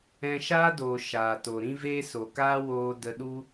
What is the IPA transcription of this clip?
ɛ̃˧ʃaː˦doː˨ ʃaː˨to˨ ɾĩ˦veː˦ so˨kaː˦ woː˦ də˧ɗu˦

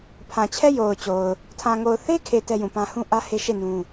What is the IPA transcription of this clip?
pʰã˨t͡ɕʰɛ˦ jo˨ʊ̯t͡ɕo˨ʊ̯ | tʰã˨ŋo˨ʊ̯θe˦kʰe˨ tɛ˦jũ˨pã˦ hũ˦ʔä˦ he˦ ʃe˦˨ nũ˦

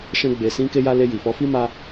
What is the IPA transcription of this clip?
ʃɛ̃˦ɡ͡be˧ sĩ˧ke˧ja˧ le˧ji˨fɔ˧fi˦ ma˦

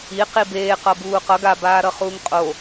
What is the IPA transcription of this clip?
i qibeː qʌbuːqʌɡ abaːɾʌ χuːŋqʼo

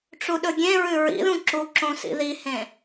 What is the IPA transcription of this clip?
ʈ͡ʂuɗɵɡʲẽɹʉ ɹḭðũ ǁuǁõ sḭðihẽ

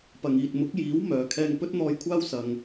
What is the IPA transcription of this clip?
pɐ˨ŋ iː˨t̚ mʊ˨˥k̚jiː˨˥w mœː˧kʰɛː˥ŋ pɵ˥t̚n̪ɔː˧jkʷʰaː˥w sɐ˨ŋ

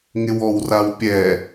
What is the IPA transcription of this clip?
ŋɪwɔwrawpʲɛ

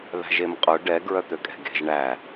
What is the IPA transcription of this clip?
ðæ̤ʒemqʼœ ɖɛ ɡɹœt̪økʼɛ̤ɡe̤ʒ ɳæ

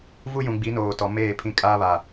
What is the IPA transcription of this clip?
vu˦jũ˨ɡ͡bi˨˦ noː˨tɔ˨meː˦˨pʰĩ˦ kʼaː˦βa˨

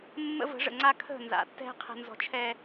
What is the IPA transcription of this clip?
mːə̰˦və̤˨˦ʐə̰˨ŋ͡ǀa˦ kʰə̤˦˨nza̰˨tːɛ̤˦ qʰɛ̤˨nzɔ̤˨t͡ʃʰɛ˨

